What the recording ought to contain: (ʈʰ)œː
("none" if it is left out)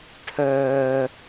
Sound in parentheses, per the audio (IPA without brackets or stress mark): ʈʰ